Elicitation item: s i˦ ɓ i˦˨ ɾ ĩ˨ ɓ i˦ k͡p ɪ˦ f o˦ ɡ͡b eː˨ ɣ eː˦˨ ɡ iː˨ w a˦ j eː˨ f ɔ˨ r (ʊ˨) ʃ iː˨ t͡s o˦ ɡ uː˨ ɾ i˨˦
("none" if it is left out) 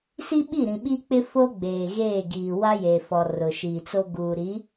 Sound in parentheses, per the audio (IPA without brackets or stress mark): ʊ˨